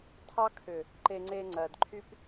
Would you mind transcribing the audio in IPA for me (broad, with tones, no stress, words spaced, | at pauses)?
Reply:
tʰɑ˦kʰʏ˨ | ǃe˨ŋ͡ǀe˨ ŋ͡ǀɜ˨dǃʰy˦p